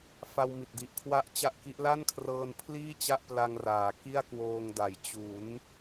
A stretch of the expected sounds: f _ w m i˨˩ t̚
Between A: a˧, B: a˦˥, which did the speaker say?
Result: A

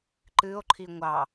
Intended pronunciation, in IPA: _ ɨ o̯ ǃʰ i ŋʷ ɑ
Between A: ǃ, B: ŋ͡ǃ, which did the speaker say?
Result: A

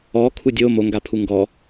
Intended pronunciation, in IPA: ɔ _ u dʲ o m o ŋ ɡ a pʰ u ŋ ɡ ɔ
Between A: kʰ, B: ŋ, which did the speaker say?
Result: A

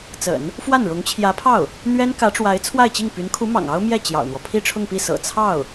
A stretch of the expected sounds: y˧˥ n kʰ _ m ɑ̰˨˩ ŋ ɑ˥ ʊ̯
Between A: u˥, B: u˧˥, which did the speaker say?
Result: B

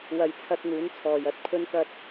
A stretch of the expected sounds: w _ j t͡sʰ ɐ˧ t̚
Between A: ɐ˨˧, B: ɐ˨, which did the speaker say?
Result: A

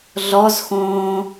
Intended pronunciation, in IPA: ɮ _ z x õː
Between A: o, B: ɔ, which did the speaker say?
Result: B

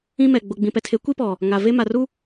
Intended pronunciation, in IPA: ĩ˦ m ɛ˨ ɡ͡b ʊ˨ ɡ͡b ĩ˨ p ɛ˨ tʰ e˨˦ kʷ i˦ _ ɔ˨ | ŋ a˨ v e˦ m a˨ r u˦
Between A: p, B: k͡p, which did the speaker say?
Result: A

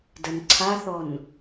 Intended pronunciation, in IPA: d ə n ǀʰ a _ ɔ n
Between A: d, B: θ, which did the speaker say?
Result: B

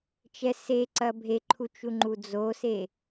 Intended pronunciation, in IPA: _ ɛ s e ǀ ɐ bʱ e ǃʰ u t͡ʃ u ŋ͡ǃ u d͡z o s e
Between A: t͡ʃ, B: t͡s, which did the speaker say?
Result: A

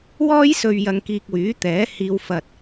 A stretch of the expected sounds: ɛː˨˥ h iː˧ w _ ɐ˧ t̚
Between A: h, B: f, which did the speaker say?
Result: B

